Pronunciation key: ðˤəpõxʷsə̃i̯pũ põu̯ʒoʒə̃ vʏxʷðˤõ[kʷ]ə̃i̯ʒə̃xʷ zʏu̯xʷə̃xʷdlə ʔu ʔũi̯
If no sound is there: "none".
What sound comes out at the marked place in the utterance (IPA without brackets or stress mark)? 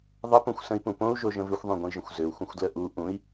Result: ɡʷ